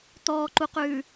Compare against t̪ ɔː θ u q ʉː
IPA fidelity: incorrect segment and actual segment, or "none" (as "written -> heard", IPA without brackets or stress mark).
θ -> ǃ